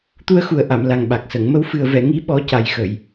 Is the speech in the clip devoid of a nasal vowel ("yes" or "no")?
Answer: yes